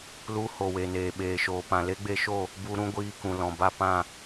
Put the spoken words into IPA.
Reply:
l u˧ h o˨ w e˨ n eː˨ ɓ eː˨ ʃ oː˨ p ã˨ l e˦ ɡ͡b e˧ ʃ o˦˨ | b u˧ ɾ ũ˦ ɡʷ iː˧ k ũ˨ l ɔ̃˨ b a˦˨ p ã˦˨

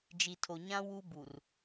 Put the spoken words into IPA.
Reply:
d͡ʒ i˨ tʰ o˨ ɲ ã˦ w u˦ b u˨ r

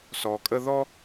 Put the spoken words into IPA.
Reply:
s ɔ˨ kʼ ə˦ ð ɔ˥

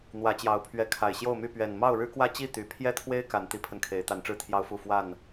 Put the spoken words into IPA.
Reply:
n̪ w ä˨˦ t͡ɕ j ɑ˨˩ ʊ̯ pʰ ɥ ɛ˨˦ kʰ a˨˩ ɪ̯ ɕ j o˥˨ ʊ̯ m y˥˨ p ɥ ɛ˨˩ n m ɑ˥˨ ʊ̯ ɻ ɻ̩˦ k w ä˥˨ t͡ɕ i˥˨ t̪ y˨˩ pʰ j ɛ˥˨ t̪ʰ w e˦ ɪ̯ k a˨˦ n t̪ i˨˦ pʰ ə˧ n kʰ e˨˦ ɪ̯ t̪ a˨˦ n ʈ͡ʂ ɻ̩˥˨ t̪ʰ j ɑ˦ ʊ̯ f u˥˨ f w a˥˨ n

